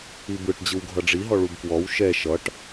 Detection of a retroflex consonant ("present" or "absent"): present